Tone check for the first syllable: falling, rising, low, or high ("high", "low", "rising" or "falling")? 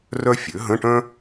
high